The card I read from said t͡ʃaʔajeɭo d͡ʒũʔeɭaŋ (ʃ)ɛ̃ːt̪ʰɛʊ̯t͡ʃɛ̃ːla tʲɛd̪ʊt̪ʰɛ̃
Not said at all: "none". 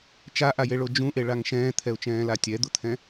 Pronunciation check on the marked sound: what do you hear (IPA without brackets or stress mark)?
ʃ